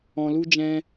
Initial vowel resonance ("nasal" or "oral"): nasal